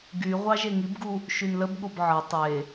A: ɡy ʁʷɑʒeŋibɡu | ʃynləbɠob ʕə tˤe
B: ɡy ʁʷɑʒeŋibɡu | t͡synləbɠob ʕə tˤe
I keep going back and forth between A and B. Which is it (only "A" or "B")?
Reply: A